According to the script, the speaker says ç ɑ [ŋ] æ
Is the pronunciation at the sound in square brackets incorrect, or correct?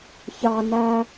incorrect